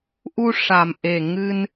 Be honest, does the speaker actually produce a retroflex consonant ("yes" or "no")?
yes